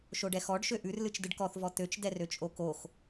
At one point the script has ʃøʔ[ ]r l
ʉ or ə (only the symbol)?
ʉ